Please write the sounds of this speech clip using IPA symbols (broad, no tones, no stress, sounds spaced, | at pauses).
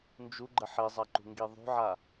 n d͡ʒ u ɡ͡ǃ ə ħ i zˤ a ǃ ṳ ŋ ɡ i ðˤ ṳ ʕ a